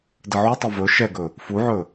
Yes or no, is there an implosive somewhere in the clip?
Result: no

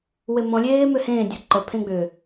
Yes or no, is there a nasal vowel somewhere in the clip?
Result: yes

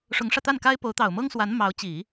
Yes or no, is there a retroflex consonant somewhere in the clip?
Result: yes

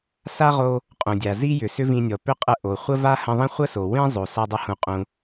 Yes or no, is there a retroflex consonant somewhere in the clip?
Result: no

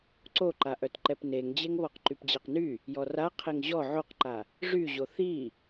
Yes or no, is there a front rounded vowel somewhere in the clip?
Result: yes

